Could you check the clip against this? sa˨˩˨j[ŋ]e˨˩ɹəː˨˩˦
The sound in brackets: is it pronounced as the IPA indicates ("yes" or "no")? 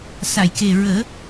no